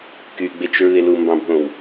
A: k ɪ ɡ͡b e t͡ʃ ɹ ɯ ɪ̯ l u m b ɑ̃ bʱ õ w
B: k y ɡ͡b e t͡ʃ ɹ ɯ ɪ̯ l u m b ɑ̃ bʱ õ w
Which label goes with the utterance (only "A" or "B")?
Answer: B